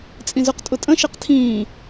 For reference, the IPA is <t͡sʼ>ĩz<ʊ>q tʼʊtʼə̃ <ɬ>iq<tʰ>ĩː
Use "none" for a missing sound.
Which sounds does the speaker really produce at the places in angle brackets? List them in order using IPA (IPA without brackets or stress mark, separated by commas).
t͡sʼ, ʊ, ʃ, tʰ